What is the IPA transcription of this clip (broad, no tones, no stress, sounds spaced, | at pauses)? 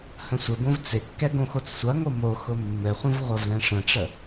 h ə̃ sʷ ɘ b õ v t͡s ɪ kː ɛ ɡ õ x o t͡s sʷ ɐ ŋ o m o x ʊ mː ɘ χʷ ɐ̃ v ʁʷ ɐ v l ɛ̃ ʂ ə̃ ʈ͡ʂ ə